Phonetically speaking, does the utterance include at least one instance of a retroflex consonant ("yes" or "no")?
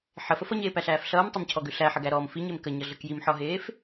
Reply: no